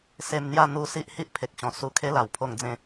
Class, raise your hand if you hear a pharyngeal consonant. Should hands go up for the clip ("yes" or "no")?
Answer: no